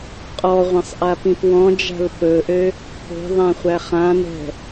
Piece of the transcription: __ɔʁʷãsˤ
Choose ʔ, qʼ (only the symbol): qʼ